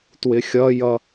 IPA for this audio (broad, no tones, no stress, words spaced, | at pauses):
twɪxʲʌjʌ